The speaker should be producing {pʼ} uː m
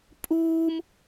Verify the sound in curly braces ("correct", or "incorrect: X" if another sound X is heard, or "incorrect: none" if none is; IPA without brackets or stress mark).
correct